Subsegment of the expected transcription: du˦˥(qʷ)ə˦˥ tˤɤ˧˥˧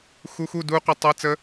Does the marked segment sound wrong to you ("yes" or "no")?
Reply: no